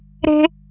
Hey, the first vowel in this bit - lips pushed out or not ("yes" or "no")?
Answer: no